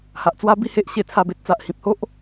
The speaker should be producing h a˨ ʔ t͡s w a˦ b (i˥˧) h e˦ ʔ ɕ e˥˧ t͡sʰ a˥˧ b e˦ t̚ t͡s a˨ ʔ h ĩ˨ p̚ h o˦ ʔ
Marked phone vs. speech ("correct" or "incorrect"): correct